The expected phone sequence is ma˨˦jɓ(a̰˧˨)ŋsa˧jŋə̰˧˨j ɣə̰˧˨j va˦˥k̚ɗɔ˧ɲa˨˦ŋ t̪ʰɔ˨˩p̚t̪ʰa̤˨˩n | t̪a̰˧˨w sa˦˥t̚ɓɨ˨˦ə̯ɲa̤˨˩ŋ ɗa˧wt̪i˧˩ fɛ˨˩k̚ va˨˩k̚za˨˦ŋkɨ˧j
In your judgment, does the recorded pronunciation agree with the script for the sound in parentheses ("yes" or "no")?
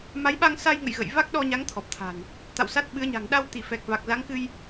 no